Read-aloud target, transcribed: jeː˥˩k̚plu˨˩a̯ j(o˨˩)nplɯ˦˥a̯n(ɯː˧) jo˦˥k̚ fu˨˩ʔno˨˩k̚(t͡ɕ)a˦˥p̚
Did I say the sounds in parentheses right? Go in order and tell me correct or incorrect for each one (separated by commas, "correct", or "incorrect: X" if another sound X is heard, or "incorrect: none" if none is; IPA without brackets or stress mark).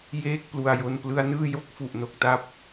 incorrect: o˧, incorrect: ɯː˥˩, incorrect: t